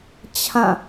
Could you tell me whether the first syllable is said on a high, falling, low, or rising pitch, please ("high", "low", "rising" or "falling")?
falling